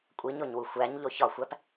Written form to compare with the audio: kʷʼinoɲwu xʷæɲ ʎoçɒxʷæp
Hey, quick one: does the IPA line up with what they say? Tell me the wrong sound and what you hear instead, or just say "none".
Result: n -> ɲ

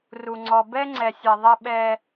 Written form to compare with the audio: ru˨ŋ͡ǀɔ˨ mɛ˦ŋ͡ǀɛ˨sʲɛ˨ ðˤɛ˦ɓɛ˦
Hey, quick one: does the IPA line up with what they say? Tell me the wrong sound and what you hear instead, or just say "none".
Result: m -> b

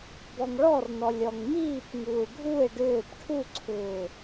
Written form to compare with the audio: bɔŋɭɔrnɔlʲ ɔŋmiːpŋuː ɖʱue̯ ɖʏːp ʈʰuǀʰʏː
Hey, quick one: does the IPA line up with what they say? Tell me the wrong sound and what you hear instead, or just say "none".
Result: none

